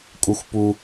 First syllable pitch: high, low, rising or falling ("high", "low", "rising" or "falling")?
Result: high